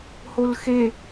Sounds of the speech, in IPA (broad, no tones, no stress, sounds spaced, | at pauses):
h o l x e